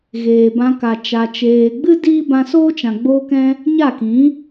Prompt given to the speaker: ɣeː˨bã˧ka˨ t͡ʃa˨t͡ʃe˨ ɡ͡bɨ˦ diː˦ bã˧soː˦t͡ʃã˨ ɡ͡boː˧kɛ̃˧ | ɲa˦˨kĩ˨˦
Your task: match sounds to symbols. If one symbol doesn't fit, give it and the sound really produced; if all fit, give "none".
e˨ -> eː˨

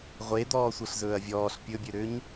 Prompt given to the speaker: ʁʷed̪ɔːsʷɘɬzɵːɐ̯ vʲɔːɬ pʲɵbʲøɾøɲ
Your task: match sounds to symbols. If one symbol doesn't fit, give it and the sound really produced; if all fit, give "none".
none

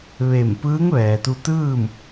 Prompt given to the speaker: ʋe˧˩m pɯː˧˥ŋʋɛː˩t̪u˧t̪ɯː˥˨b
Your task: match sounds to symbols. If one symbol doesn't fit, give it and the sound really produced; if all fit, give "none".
b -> m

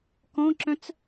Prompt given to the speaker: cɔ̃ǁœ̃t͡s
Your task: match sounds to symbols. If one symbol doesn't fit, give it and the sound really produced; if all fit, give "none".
c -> k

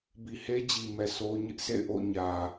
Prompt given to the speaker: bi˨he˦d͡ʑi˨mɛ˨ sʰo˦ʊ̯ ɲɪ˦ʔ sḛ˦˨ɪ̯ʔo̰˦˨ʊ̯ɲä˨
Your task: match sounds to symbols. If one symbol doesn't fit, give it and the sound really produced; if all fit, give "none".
none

